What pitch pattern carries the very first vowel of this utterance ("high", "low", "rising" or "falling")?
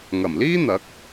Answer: low